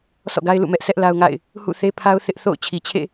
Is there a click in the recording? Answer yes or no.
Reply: no